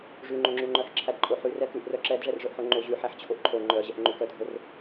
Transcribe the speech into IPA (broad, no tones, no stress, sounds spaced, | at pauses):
ʐ ʉ ŋ͡ǃ o ŋ͡ǁ ʉ ŋ͡ǃ œ ħ ǁʰ æ d ǃʼ o ħ ʉ r ɛ k ʉ ʔ r œ ǁ ɛ d ʐ ɛ r ʐ œ ʔ ħ o ŋ͡ǃ o ʑ ʉ ħ æ ħ t͡ɕʰ o ʔ ǃʰ o ŋ͡ǃ œ ʑ ɛ ʔ ŋ͡ǃ ʉ k œ dʱ o r